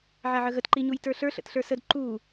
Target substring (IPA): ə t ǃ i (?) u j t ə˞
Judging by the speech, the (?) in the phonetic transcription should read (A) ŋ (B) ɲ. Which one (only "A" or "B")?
B